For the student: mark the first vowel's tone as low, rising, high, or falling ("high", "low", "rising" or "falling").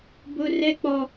high